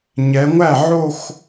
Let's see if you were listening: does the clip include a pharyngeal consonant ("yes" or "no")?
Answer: yes